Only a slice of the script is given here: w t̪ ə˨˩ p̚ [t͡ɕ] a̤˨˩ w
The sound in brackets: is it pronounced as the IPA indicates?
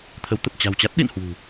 yes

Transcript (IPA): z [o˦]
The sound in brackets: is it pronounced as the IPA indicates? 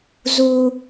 no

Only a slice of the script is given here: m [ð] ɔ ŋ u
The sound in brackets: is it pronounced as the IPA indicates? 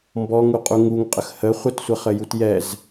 no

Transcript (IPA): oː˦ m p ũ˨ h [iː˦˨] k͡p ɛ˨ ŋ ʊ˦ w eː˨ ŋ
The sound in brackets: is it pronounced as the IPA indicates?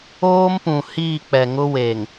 yes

